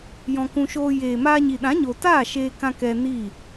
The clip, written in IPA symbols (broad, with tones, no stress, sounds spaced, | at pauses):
j ɔ̃˧ k ũ˧ ʃ oː˧ j eː˨ m aː˧ ɲ i˨ ɗ ã˨˦ ɲ o˨ t aː˦˨ ʃ eː˧ k ã˧ k ɛ˧ n i˦˨